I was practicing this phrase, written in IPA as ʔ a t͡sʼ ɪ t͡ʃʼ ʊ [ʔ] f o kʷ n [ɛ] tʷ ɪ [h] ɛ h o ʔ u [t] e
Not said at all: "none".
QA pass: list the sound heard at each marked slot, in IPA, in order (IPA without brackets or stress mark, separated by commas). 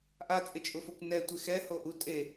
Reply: none, ɛ, x, tʼ